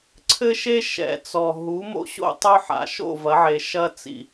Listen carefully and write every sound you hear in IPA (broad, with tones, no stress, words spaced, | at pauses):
ǀʰɘ˦ʃe˦ ʃɛ̰˨t͡sɔ˨ ɦu˨˦mo̰˧ɕo̰˧ tˤo˧ ħa̰˨ʃo̰˦˨vɐ˨˦ʕe˨ ʃɐ˧t͡sḭ˨